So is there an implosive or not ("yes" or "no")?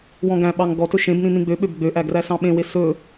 yes